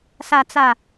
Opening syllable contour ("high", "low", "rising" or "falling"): low